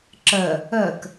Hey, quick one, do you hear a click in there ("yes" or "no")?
yes